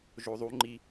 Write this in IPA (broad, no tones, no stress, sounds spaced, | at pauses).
ʒ o ðˤ u ŋ͡ǃ i